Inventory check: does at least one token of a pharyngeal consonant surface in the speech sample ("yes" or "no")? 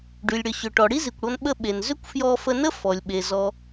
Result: no